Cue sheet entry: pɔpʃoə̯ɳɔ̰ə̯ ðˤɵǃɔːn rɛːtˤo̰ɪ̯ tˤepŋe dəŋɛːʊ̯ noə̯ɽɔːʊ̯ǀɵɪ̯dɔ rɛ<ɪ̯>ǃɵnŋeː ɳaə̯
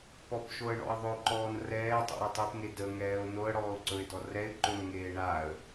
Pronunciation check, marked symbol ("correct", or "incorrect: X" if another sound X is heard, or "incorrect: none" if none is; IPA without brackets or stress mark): correct